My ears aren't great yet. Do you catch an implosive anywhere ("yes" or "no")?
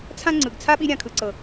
yes